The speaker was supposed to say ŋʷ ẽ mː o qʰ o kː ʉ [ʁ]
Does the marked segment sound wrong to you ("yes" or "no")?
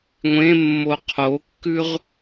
no